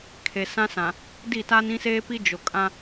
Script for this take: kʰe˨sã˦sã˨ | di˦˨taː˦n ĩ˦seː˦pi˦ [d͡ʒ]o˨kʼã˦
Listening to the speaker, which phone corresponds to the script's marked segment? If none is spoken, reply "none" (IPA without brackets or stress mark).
d͡ʒ